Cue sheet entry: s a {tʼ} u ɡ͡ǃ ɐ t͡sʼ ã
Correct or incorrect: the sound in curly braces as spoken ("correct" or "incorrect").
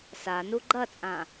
incorrect